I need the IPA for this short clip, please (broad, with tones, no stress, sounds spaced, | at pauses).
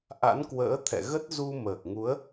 ʔ a̰˧˥ n k w ə̰ː˧˥ t̪ʰ ɛ̰˧˨ ɣ ə˦˥ t̚ z u˧ m əː˨˩ k̚ ŋ u˨˦ ə̯